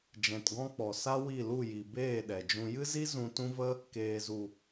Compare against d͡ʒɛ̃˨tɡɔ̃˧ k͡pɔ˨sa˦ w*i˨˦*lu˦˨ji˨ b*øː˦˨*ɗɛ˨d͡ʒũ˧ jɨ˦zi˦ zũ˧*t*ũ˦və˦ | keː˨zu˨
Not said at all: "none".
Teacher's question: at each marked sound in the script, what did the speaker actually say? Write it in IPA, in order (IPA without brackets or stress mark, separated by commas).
i˦˨, eː˦˨, t